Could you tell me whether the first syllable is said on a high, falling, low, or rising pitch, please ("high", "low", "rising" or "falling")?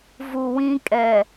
low